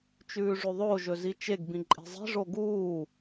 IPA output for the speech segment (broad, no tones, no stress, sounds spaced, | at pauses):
t͡ʃ ʉː ʐ ʉ ðˤ o ʒ ɵ z i t͡ʃ e ɡ b ĩ ǃʼ e̤ zˤ i̤ ʐ o ɡ uː